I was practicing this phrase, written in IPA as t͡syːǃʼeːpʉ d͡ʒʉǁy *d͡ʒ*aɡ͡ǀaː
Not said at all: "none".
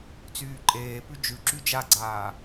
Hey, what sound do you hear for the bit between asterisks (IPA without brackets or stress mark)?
d͡ʒ